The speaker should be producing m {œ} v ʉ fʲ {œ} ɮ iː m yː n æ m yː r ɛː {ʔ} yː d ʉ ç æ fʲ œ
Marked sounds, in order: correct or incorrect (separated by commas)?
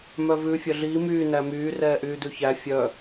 correct, correct, correct